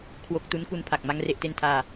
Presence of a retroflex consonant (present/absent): absent